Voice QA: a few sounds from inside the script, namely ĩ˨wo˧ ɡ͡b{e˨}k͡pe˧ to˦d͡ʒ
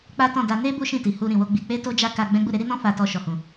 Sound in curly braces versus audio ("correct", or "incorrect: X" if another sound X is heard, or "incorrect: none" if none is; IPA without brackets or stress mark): incorrect: i˨